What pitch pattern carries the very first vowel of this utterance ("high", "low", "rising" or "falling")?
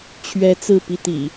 high